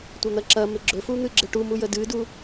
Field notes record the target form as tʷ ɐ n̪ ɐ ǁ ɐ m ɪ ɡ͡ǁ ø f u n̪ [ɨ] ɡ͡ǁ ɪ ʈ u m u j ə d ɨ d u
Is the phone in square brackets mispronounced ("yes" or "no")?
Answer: no